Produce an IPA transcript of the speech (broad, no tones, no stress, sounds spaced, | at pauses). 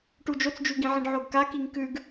ʈ u d͡ʒ o t͡s d͡ʒ ʉ ɡ ĩ ʕ ĩ ɖ ʕ o ɡ k a k i ŋ k ʉ ɡ